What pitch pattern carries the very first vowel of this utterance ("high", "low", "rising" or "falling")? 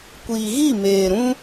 low